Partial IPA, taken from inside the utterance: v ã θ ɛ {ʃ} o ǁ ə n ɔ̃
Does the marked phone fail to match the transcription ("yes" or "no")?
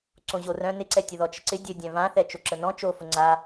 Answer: yes